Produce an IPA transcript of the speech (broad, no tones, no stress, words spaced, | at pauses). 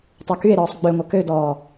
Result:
tˤøkye̯ɾɔːsˤ ɡ͡bøŋʷɐ kødɔː